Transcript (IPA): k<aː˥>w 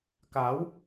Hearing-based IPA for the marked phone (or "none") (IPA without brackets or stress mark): aː˨˥